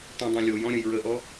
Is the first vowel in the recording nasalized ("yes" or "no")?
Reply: yes